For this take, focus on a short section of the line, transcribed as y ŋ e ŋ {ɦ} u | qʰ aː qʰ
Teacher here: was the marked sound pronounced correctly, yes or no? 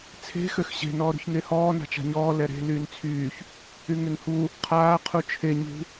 no